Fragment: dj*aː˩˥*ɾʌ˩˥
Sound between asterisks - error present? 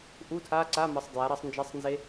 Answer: yes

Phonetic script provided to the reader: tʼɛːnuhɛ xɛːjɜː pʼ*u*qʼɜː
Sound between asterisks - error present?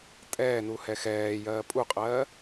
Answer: no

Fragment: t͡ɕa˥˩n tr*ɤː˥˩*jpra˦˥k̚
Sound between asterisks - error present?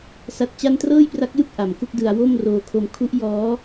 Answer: no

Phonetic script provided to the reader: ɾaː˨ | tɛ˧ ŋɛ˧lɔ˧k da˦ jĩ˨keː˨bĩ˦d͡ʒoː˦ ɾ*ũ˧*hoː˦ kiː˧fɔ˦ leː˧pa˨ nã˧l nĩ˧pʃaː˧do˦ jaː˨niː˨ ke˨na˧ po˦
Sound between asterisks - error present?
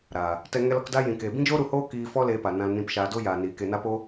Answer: yes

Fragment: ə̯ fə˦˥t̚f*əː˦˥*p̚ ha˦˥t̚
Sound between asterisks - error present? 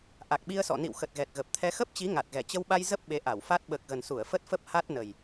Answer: yes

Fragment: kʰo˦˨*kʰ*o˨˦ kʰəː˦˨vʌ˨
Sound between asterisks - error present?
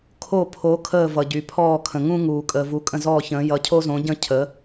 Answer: yes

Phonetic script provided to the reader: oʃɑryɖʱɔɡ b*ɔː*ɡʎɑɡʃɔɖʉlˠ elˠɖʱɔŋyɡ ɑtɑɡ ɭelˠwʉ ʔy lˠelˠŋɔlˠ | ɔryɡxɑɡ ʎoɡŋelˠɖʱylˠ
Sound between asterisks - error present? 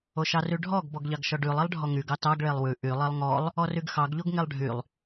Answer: yes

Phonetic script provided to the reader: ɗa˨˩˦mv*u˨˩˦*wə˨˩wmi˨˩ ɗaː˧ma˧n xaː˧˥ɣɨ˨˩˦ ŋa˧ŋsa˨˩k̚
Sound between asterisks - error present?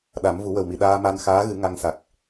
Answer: no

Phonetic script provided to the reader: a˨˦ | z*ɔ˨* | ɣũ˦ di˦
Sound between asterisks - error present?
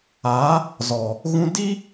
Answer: no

